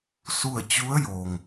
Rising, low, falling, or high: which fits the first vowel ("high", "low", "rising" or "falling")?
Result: falling